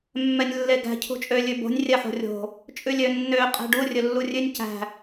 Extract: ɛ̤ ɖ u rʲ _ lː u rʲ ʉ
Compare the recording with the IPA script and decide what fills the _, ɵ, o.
ɵ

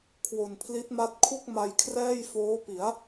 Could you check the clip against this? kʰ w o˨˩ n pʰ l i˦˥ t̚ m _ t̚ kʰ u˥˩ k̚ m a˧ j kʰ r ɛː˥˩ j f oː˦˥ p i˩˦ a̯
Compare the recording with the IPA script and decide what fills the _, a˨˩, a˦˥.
a˦˥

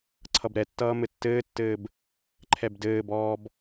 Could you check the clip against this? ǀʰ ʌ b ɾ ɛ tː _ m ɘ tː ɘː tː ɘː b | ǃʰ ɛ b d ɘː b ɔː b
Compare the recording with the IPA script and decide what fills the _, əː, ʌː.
ʌː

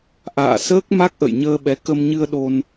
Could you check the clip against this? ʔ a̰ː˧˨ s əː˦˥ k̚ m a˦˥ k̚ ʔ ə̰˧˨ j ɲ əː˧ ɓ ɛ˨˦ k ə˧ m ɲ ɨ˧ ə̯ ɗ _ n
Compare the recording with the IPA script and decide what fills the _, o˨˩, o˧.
o˧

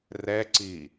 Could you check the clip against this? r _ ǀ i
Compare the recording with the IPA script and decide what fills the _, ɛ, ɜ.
ɛ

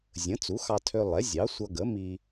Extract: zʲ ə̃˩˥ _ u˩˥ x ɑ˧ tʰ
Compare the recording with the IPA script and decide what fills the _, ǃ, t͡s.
t͡s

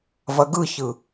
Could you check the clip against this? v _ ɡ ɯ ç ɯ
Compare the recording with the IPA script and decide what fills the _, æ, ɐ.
ɐ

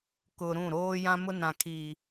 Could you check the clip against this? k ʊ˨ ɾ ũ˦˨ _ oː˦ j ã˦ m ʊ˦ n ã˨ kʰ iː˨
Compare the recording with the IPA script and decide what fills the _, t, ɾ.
ɾ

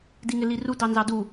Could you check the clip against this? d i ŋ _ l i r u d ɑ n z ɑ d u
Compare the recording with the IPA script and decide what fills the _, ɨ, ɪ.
ɪ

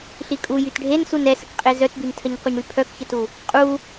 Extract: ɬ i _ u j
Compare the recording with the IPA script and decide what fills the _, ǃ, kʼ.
kʼ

